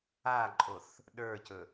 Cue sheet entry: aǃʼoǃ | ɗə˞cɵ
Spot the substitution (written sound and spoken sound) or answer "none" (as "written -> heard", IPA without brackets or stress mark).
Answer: ǃ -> θ